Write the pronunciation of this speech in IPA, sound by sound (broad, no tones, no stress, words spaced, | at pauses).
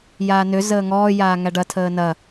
jaːnø zəːŋɔː jaːŋæɖɐ tʰəːnɐ